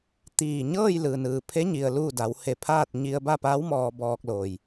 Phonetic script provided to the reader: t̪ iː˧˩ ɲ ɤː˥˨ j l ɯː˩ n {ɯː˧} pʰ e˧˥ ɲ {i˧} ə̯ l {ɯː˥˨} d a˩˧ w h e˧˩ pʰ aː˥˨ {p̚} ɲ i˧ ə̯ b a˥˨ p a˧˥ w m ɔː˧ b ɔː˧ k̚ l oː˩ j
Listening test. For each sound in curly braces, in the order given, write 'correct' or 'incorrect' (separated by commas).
incorrect, incorrect, incorrect, incorrect